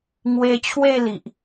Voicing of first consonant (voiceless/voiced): voiced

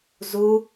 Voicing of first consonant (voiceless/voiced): voiced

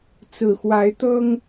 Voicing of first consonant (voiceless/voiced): voiceless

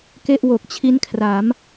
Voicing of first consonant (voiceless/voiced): voiceless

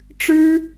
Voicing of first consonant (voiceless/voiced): voiceless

